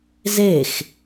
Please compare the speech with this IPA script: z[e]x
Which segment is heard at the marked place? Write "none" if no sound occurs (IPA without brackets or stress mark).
e